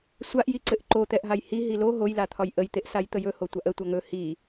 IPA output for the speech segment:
sʷ a ʔ j i ǀ ɘ ʔ ǃ o t̪ ɛ ʔ ɦ a j h i ɦ i l o ɦ o j l a t̪ʰ ɒ j ʔ ə j t̪ e ʔ s a j t̪ ə j ɵ h o tʷ a ʔ ə tʷ a ŋ ɵ h i

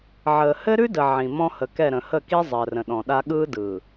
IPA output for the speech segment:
ʕ əː˨ h ɘ˦ ɾ ʉ˦ d ə˨ ʕ ĩ˨ m ɔ̃˦ h ə˨ k ɛ˦˨ ɾ ə̃˨ h ə˦˨ k i˦ zˤ əː˨ r ə̃˨ ɗ ɔ̃˨ ɗ a˦ ɠ ɯː˦ d ɯː˨

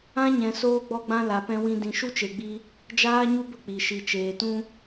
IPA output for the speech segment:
ã˦ ɲ ɛ̃˨ s oː˧ ɡ͡b ɔ˧ ɡ͡b ã˧ l a˨ p ɛ̃˧ w ĩ˧ d ĩ˨ ʃ u˦ t͡ʃ e˨ ɡ͡b i˧ | d͡ʒ aː˦ ɲ u˦ b ə˦ k͡p i˨ ʃ i˨ t͡ʃ eː˨ t ũ˦

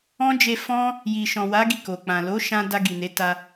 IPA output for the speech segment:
ɔ̃˦ d͡ʒ e˧ f ɔ̃˦ | j i˨ ʃ ɔ̃˨ w a˨˦ ɡ i˦˨ k o˨ k͡p ã˨ l o˨˦ ʃ ã˧ d a˧ ɡ i˨ n e˨˦ t a˧

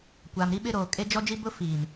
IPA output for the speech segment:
kʷ aː˨ m ɾ i˦ ɓ ɪ˦ ɾ oː˨ kʼ e˦ d͡ʒ ɔ˦ d͡ʒ i˦ b ʊ˦ f iː˨ m

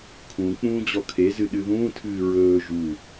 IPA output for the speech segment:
kʰ ũ k͡p ũː d͡ʑ ɔ kʰ e z ɨ ɗ ɨ ð ũː tʰ ɨː ɹ ɵː ʒ u

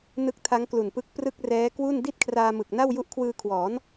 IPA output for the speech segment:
n ɯ˦˥ k̚ tʰ a˦˥ ŋ k l u˨˩ n p ɯ˦˥ k̚ p r ɯ˥˩ k̚ r ɛː˦˥ k w u˥˩ n d i˥˩ t̚ kʰ r aː˧ m ɯ˨˩ k̚ n a˥˩ w j u˦˥ ʔ kʰ w ɯː˧ kʰ w ɔː˩˦ n

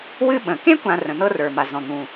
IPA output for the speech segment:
w ɨ˦ ɓ ə̃˩ k ẽ˥ kʷ ã˨ r ə̃˩ n̪ ɤ˦ r ə˞˩ m a˩ z ɔ̃˩ n̪ ũ˩

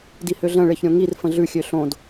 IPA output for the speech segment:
d i h ø ɮ ə̃ ɭ e ç ɾʲ õ ŋ i r f ə̃ ɮ ʉ xʲ ø ɬ õ d

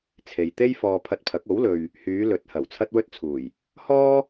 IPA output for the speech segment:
t͡sʰ e˨ j t̪ e˥ j f ɔː˧ pʰ ɐ˧ t̚ pʰ ɐ˨˥ k̚ o˨˥ w l ɵ˨ ɥ | h yː˨˧ l ɵ˨˥ t̚ h ɐ˨˩ w t͡sʰ ɐ˥ t̚ w ɵ˥ t̚ t͡sʰ uː˨˩ j | h ɔː˥

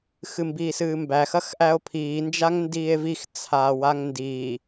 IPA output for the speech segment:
x ɨ m b iː s ɨː m b æ x ɐ x ʔ æ o̯ pʰ iː n d͡ʒ a ŋ n d iː e̯ v i x t͡sʰ aː w a ŋ n d iː

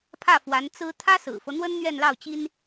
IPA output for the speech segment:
pʰ ä˥˩ f w a˧˥ n t͡s ɹ̩˥ t̪ʰ ä˥ s ɹ̩˨˩ f ɤ˦ n̪ w ə˥ n n̪ ɥ ɛ˥˧ n l ɑ˥˩ ʊ̯ t͡ɕ i˥ n

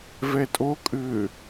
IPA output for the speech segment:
v ɛ tʼ o kʼ ʏ

